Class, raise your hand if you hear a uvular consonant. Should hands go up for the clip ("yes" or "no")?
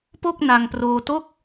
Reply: no